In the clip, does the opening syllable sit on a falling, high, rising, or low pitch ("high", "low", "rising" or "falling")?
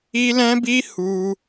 high